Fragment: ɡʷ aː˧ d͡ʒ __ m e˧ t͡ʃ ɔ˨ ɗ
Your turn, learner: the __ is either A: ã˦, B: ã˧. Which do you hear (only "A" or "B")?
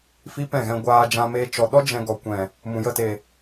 B